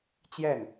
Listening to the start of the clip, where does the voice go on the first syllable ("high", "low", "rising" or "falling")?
falling